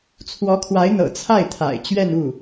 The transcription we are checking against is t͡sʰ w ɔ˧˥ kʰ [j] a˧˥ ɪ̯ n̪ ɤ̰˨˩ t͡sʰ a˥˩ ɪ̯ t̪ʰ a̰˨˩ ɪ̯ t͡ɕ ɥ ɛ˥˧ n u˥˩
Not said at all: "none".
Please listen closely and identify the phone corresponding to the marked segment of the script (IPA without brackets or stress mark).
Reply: w